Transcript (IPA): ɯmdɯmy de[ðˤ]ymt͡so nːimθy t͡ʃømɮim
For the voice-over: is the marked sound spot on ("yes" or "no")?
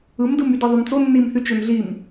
yes